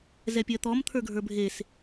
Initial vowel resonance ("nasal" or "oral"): oral